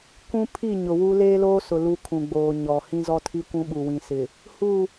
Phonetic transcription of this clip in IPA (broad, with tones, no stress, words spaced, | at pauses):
kʷũ˦ pʰi˦˨ɲʊ˨wu˦ leː˦loː˦sʊ˨ lu˦ kʰũ˨ɡ͡boː˨ ɲɔ˨ hĩ˦zɔ˦tʰi˦ kʷũ˦ɓu˨wĩ˨sɪ˨ | hu˦˨